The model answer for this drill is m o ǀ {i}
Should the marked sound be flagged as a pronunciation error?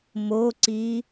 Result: no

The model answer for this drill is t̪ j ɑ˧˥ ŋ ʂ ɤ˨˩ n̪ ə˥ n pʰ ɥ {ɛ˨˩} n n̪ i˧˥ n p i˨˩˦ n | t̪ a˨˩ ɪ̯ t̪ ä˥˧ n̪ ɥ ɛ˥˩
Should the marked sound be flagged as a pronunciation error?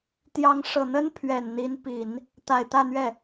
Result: no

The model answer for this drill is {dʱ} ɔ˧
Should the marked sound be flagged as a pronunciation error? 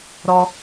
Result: yes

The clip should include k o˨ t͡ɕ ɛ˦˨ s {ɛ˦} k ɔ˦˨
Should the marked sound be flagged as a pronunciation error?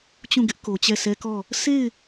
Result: no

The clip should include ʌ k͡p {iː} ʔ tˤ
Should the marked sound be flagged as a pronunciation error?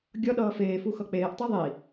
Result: yes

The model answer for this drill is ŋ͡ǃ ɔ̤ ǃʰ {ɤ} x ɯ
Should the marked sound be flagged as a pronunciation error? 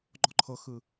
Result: no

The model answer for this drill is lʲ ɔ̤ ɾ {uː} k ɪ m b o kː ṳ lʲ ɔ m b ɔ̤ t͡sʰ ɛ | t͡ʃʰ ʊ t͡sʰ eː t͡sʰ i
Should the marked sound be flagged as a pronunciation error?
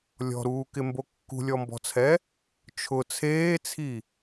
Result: no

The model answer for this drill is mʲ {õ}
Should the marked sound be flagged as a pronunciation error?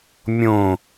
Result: no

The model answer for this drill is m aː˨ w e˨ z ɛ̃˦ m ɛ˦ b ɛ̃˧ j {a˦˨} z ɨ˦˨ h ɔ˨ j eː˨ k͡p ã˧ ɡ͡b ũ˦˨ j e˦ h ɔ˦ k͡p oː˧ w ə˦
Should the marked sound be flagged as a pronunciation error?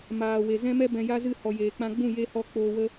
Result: yes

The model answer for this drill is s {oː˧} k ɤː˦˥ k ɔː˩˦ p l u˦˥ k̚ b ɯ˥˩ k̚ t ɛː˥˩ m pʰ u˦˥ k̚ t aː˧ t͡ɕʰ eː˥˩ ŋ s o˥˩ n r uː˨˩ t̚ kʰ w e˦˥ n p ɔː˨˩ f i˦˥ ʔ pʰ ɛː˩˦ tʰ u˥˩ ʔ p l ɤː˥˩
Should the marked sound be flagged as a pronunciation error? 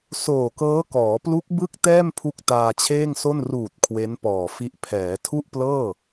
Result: yes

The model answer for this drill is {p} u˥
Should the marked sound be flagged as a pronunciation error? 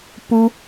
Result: no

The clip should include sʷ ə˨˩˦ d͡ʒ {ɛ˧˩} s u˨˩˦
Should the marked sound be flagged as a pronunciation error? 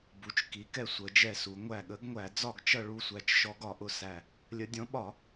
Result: no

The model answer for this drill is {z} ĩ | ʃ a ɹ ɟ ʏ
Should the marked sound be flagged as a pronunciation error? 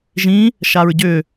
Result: yes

